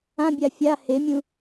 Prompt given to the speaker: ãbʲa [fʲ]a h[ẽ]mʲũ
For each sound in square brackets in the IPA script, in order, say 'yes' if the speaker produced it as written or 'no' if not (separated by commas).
yes, no